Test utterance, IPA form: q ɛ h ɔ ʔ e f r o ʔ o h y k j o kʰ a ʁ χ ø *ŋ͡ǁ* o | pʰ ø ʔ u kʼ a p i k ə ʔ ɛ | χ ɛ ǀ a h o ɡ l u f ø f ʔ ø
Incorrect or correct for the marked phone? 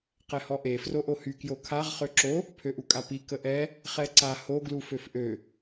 incorrect: ǁ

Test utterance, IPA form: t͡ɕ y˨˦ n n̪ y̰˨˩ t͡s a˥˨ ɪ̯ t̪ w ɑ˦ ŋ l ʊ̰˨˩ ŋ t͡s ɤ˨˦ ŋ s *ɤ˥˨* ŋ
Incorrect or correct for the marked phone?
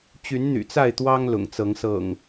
incorrect: ɤ̰˨˩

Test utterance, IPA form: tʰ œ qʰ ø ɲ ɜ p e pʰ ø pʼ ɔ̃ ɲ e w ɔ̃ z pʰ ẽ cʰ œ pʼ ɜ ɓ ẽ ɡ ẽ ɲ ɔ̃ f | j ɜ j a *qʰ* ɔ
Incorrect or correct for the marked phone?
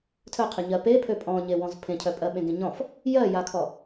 incorrect: kʰ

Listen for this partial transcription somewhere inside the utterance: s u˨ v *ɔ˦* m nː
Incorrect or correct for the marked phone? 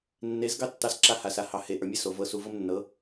incorrect: ɤ˦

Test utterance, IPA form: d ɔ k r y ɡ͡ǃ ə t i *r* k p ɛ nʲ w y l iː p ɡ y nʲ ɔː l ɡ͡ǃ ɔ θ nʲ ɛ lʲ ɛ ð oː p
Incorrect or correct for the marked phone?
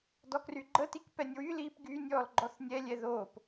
incorrect: none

